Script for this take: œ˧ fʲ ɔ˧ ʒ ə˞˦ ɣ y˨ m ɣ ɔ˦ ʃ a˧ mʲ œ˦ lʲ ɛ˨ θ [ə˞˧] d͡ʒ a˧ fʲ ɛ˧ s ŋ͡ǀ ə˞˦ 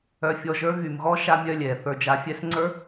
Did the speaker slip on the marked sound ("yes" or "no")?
no